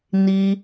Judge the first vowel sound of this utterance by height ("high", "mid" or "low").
high